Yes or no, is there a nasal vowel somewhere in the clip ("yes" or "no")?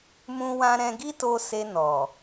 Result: yes